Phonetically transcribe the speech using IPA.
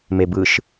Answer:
m e b ɯ ʃ

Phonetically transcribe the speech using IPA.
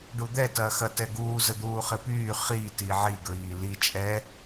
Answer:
ɖ u d̪ ɛ t ɐː x ɐ t ɛ ɡ uː z ə d̪ uː χ ɪ p yː χ i t i ʕ i ɡ ɹ iː l i t͡ʃʼ ɛ

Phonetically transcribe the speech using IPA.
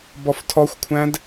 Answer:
b ɔ f tʰ ɔ xʷ kʷʰ æ̃ d

